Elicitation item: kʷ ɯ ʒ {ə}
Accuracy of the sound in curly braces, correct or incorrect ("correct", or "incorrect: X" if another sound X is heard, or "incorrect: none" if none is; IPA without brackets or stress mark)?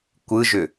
incorrect: ʏ